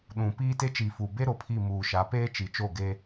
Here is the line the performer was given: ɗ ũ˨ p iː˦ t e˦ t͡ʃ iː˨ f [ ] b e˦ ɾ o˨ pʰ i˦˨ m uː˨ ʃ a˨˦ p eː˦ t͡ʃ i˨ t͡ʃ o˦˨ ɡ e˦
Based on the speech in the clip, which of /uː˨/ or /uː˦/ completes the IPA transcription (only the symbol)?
uː˨